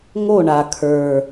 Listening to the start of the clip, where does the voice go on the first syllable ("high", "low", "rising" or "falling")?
falling